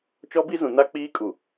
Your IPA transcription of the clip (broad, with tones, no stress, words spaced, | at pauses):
t͡ʃɔ˦bi˦zũ˨ na˦k͡piː˦kʼu˨